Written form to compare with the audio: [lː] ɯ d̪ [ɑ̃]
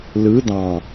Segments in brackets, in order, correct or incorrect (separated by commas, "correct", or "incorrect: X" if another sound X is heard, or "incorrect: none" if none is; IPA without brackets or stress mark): incorrect: l, correct